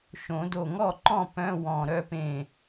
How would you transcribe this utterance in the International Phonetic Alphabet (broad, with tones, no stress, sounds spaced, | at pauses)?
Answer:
ʃ õ˨˩˦ d o˧˩ ŋ ɔ˥˨ ǃ ɔ̃˥˨ p œ̃˧˥˧ w ɔ̃˧˩ ɾ œ˥ p ẽ˥˨